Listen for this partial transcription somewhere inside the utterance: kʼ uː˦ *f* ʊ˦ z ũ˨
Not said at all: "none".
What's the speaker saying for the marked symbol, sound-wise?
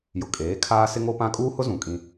h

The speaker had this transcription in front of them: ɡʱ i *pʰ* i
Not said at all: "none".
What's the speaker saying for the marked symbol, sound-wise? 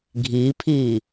pʰ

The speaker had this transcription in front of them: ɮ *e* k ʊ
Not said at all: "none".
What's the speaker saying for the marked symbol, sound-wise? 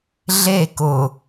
e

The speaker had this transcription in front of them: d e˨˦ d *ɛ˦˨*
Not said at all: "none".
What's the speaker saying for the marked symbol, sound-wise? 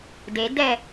ɛ˦˨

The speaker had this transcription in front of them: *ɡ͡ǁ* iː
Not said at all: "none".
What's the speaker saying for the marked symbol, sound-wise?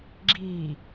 ɡ͡ǁ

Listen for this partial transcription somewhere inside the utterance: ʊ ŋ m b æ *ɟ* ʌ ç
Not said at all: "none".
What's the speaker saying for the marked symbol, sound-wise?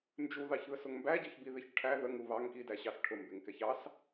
ɟ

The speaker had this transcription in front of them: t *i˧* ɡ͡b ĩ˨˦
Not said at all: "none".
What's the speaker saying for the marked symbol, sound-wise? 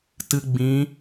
ɨ˧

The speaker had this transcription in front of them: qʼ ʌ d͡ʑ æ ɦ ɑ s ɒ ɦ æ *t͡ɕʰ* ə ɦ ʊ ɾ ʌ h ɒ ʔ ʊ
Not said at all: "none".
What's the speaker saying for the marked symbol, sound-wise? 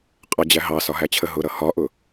t͡ɕʰ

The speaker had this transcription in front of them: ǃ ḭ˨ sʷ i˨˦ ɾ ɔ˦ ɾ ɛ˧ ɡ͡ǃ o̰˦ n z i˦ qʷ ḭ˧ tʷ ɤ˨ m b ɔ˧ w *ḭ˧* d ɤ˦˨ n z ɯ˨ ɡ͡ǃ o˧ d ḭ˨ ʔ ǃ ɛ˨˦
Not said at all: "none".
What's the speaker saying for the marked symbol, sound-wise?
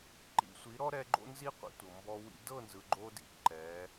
ḭ˧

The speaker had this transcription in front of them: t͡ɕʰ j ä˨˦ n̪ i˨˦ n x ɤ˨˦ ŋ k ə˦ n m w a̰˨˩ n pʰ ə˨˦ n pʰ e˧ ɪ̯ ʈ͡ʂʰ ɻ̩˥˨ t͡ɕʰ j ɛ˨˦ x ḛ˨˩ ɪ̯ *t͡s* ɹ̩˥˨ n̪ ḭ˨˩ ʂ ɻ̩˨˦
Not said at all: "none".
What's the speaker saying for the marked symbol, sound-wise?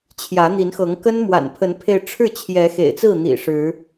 t͡s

